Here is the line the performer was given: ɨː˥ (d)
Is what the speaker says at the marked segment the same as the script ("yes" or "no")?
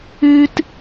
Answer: no